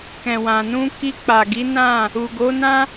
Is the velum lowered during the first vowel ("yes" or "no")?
yes